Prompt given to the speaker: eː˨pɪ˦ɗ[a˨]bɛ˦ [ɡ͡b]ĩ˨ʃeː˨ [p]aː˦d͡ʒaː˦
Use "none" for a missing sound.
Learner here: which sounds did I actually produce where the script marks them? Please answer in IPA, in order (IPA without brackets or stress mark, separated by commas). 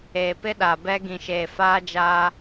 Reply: a˨, ɡ, f